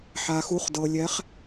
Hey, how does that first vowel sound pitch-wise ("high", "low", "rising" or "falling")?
low